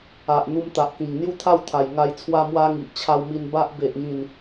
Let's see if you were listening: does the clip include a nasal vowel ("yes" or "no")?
yes